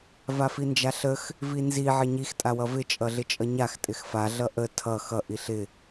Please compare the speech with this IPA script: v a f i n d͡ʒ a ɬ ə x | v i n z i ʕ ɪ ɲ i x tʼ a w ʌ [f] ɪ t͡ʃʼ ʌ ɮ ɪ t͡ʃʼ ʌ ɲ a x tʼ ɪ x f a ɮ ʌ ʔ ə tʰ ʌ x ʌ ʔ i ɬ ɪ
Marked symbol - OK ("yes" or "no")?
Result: no